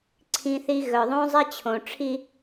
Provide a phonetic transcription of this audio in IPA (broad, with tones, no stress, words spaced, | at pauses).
ǀʰĩ˦θi˦ ɣœ˨ðˤõ˦zˤɛ˦ t͡ɕʰõ˨ʈ͡ʂʰi˦